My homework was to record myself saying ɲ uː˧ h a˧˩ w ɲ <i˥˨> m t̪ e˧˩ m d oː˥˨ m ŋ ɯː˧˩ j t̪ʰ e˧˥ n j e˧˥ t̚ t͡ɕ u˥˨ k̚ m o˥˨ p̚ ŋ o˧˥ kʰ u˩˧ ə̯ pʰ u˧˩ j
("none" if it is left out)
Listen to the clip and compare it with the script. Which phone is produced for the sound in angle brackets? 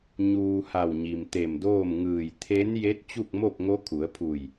i˩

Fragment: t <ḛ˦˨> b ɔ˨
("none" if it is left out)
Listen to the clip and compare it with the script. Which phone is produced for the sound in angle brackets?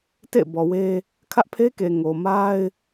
ḛ˦˨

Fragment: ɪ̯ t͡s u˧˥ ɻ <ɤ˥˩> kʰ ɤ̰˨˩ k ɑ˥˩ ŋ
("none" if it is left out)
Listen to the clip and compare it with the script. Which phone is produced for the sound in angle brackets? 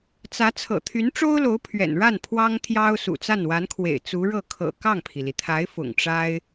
ɤ˥˩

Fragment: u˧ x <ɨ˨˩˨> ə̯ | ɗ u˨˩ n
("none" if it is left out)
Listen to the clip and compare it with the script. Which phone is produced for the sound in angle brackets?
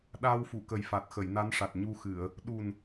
ɨ˨˩˨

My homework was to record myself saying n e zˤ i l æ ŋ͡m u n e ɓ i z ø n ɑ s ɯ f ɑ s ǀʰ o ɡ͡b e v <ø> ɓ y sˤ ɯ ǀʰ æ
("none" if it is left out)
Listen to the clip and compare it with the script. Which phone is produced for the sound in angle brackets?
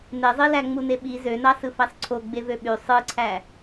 ø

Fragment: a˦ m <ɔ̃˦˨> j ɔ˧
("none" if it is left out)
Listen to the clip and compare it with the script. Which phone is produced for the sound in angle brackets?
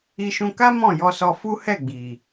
ɔ̃˦˨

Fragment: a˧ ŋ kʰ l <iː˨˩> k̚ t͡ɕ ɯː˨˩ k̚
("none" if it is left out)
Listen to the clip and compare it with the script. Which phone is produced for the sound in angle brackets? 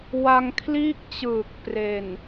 iː˥˩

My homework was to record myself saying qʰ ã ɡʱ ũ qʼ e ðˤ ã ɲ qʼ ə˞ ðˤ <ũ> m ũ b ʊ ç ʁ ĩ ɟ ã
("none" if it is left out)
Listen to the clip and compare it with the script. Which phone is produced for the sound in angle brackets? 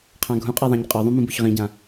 ũ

